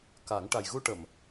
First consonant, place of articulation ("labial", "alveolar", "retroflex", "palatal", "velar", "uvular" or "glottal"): velar